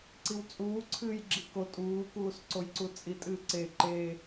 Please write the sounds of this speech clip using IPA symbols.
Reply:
ǀ i w t͡sʼ uː ǀʰ ɨː j ɡ͡ǁ i k o tʼ uː k uː s ǀ o j ǀ u t͡sʼ i tʼ ɨː ǀ e ǃ e

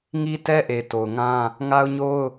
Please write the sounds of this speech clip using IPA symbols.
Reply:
ŋ i˦ t ɛ˦ ʔ e˨ t o˨ ʊ̯ ŋ ã˦ | ŋ a˦ ʊ̯ ɲ o˦ ʊ̯

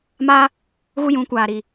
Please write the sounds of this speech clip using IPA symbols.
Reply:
m a˦ | ɣ u˦ j ũ˨˦ kʷ aː˨ ɾ i˨

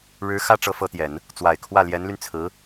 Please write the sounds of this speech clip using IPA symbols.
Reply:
ɻ ɻ̩˧˥ x ä˥ ʈ͡ʂ ɤ˧˥ f ɤ˧˥ t̪ j ɛ˨˩˦ n | t͡s w a˨˩ ɪ̯ kʰ w ä˥˩ l j ɛ˧˥ n l y˧ n t͡sʰ ɹ̩˧˥

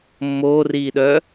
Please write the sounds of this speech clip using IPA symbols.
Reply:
mː oː r iː ɗ œː

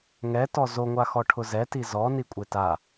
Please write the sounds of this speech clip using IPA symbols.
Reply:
ŋ ɛ t ɔ z o ŋʷ a x ɔ ʈʰ ʊ z ɛ t i z ɔ n i kʷʼ e t a

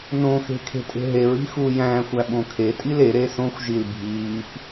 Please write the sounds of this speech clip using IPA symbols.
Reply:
n õ x e̤ kʰ e̤ tʼ e̤ ɦ e ɹ i̤ x uː j æ̃ː xʷ æ ɓ õ kʰ e tʼ i l e ɾ e s õ xʷ ʒ i l bʱ iː p

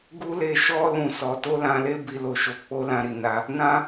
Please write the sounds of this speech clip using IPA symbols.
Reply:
ɡ u˦ l e˧ ʃ ɔ˦ l ũ˧ s ɔ˧ t o˦ l ã˧ l e˦ b i˧ l o˧ ʃ o˧ k͡p o˦ l ã˧ ɾ i˨ n a˧ | n ã˦

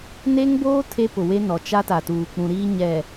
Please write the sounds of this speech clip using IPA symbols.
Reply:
n e˦ ŋ b oː˦ tʰ e˦ p ʊ˨ w e˦ n ɔ˨ t͡ʃ a˦ t a˨ t uː˨ k͡p ũ˨ ɾ iː˦ ɲ ɛ˨

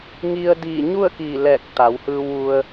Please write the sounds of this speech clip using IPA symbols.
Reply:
ŋ i˧ ə̯ d iː˧˩ ɲ u˥˨ ə̯ k iː˧˩ l ɛː˧˩ k̚ t̪ a˩˧ w h ɯː˧ w ʋ u˧ ə̯

